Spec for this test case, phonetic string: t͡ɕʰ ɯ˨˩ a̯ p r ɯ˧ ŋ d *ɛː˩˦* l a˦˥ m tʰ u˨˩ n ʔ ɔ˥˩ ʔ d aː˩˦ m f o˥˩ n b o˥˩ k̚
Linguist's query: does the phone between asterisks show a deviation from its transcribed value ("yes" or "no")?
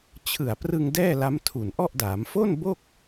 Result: yes